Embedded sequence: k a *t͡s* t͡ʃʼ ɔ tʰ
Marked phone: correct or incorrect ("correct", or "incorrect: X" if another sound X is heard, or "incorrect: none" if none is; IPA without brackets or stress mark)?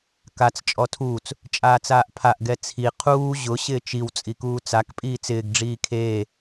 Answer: correct